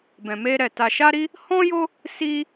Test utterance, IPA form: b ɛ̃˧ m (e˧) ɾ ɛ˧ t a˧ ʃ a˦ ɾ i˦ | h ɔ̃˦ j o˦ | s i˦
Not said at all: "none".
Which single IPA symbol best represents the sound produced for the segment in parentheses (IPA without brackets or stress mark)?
e˦